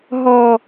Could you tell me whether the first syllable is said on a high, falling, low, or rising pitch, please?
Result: low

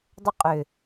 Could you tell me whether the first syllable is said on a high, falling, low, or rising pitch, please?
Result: high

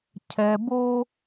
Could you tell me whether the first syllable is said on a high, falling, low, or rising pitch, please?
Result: low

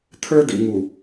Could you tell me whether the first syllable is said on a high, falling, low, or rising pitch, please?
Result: high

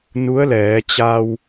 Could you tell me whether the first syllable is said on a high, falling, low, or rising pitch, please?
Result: rising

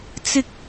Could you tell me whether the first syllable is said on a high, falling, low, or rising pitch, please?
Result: high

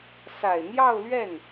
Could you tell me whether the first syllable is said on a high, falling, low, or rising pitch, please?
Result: low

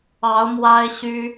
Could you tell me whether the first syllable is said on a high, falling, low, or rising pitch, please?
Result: rising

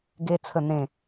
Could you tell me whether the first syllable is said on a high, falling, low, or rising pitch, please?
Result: high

